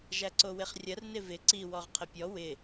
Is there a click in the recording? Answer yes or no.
yes